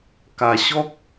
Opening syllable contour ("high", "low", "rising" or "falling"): low